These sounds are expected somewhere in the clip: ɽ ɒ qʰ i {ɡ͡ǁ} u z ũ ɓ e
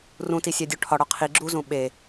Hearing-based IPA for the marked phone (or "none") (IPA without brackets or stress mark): ɡ͡ǁ